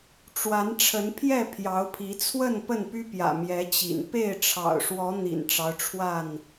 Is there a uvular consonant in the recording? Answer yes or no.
no